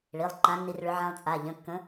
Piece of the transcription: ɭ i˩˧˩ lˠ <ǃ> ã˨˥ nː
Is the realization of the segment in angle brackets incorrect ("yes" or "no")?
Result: no